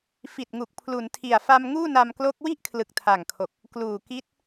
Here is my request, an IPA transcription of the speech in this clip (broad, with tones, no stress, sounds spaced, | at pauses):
f i˨˩ t̚ ŋ u˨˩ k̚ pʰ l u˩˦ n tʰ i˨˩ a̯ f a˧ m ŋ uː˥˩ n a˧ m k l o˦˥ k̚ w i˥˩ ʔ kʰ l ɯ˨˩ k̚ tʰ a˨˩ ŋ kʰ o˨˩ k̚ | k l uː˨˩ k i˦˥ t̚